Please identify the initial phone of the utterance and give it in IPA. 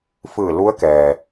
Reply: f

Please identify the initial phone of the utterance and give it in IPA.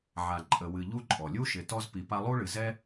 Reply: ʕ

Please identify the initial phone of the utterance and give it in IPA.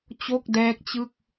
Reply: t͡ɕ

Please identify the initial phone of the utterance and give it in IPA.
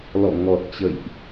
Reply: l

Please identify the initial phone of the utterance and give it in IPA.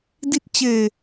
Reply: d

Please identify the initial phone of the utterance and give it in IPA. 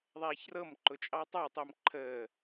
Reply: ðˤ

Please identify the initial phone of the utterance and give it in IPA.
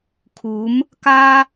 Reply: kʰ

